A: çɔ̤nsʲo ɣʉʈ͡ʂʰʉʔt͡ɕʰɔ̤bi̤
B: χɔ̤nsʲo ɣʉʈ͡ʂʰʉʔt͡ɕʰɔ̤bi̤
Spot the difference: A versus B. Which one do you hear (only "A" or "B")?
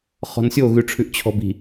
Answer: B